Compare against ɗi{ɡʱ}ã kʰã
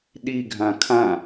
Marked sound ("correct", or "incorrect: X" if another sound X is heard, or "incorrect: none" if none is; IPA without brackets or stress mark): correct